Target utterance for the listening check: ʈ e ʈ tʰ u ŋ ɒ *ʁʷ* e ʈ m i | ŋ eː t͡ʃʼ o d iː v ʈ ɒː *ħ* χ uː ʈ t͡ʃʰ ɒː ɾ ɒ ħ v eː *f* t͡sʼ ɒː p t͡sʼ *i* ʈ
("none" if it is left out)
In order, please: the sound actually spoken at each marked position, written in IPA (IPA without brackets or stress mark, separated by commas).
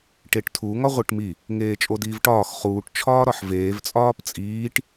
ʁʷ, x, v, iː